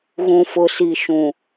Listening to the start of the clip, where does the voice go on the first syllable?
low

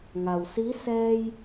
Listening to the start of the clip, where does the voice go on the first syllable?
low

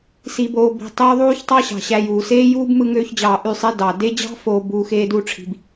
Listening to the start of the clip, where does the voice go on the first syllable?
low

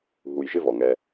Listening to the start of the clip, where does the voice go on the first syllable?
low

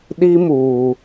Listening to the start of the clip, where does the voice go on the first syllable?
high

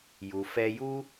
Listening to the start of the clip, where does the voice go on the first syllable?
low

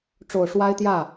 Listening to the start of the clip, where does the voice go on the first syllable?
low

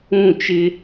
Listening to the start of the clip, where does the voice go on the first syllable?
falling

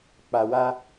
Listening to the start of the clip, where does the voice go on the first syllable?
low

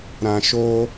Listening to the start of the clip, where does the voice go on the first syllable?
low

